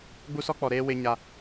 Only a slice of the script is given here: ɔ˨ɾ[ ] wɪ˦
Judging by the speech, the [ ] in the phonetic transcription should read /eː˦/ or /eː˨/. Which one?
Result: eː˦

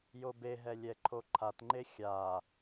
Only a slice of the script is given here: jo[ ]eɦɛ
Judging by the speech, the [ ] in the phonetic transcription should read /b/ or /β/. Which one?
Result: b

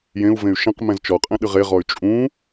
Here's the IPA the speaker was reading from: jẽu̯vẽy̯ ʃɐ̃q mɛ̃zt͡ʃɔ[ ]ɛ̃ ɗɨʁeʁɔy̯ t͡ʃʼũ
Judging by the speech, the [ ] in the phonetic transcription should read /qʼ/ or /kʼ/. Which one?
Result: qʼ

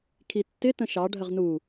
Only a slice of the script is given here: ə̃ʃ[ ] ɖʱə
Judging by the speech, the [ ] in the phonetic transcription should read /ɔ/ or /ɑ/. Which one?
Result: ɑ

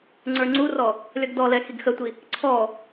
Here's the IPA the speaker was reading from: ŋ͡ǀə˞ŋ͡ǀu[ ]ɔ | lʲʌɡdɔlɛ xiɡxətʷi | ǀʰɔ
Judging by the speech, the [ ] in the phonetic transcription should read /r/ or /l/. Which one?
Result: r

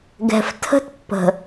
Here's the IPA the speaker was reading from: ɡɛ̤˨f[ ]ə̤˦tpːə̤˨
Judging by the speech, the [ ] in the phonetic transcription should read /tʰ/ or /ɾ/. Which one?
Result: tʰ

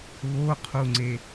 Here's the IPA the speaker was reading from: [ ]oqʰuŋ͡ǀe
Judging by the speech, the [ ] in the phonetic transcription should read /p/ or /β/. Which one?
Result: β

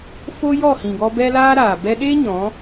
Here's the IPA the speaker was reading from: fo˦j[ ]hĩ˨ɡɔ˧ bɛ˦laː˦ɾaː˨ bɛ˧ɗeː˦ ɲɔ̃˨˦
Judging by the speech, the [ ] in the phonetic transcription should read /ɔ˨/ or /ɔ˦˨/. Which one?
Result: ɔ˦˨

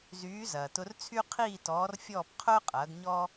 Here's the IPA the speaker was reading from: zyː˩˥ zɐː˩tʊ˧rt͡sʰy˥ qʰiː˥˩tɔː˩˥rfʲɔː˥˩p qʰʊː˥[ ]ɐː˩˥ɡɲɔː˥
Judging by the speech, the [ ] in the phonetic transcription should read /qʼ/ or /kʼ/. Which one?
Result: qʼ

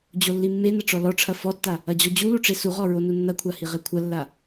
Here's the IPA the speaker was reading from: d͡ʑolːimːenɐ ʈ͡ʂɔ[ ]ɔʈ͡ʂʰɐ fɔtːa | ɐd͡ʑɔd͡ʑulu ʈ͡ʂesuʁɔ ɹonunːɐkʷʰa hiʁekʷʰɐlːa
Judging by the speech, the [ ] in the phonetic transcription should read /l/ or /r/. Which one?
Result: l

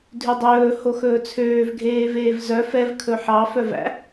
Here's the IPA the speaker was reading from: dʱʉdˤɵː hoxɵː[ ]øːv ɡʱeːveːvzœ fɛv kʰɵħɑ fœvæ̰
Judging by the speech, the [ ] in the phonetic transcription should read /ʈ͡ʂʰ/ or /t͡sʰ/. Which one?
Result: t͡sʰ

